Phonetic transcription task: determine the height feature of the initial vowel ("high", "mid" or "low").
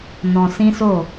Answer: mid